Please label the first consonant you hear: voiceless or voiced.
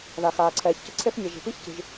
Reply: voiced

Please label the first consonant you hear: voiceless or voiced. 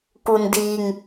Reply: voiceless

